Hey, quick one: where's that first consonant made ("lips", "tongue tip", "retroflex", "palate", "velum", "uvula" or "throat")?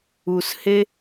tongue tip